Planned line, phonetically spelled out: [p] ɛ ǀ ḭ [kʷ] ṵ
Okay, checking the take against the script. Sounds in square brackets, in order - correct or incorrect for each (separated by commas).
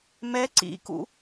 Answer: incorrect, incorrect